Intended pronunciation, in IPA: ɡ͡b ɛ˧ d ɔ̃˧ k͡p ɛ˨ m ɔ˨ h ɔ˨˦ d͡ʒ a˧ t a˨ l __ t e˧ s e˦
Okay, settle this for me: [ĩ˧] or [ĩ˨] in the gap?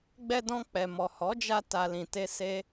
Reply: ĩ˨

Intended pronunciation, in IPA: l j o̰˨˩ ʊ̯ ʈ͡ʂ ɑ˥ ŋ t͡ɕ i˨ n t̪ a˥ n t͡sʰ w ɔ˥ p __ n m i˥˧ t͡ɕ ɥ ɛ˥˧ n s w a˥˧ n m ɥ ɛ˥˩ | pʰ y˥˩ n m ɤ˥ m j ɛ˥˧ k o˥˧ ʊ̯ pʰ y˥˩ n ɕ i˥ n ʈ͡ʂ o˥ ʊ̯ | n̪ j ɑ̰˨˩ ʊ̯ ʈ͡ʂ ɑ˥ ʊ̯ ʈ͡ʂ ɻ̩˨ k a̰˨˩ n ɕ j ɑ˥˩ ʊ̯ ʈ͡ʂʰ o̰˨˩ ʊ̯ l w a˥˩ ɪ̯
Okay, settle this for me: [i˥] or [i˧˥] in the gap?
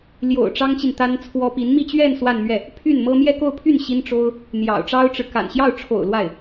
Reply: i˧˥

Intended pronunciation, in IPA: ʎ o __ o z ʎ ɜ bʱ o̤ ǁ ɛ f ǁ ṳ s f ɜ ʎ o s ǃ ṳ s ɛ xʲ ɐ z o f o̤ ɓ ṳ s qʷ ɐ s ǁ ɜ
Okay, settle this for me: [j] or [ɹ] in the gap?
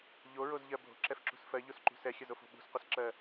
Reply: ɹ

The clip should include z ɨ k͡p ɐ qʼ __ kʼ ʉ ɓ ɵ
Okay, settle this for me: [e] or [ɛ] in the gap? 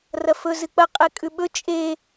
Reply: e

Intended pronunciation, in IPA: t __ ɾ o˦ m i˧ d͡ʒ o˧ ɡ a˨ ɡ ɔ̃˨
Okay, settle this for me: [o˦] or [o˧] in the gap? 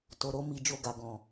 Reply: o˧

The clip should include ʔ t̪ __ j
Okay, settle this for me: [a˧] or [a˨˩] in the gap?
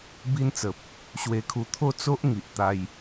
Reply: a˧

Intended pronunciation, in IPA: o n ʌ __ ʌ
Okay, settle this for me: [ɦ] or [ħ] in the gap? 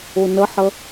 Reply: ħ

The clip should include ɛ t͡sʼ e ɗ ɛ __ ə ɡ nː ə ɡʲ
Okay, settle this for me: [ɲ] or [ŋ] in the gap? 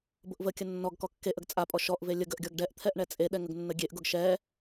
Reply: ŋ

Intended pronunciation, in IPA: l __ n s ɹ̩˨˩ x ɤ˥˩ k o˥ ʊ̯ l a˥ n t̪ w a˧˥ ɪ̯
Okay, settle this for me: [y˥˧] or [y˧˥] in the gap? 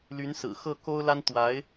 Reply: y˧˥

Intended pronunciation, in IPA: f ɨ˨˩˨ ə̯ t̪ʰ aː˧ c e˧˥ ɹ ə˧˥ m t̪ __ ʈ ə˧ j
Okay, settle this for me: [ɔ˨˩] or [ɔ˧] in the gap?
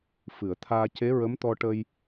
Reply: ɔ˧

